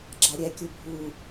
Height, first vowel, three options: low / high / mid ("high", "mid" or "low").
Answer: low